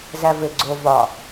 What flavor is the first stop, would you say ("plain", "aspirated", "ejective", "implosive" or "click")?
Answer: click